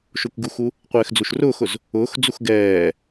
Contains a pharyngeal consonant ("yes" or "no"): no